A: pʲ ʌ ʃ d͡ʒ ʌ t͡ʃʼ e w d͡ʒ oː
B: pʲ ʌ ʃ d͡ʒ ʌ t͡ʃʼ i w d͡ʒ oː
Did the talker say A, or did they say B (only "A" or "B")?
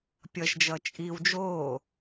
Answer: B